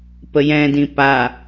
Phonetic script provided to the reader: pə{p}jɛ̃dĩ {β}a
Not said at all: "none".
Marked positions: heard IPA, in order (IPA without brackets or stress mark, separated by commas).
none, p